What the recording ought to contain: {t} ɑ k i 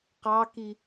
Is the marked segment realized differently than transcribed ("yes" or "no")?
yes